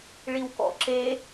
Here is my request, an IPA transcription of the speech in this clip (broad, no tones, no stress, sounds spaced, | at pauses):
ɭ i w k ɔ̰ ǁ e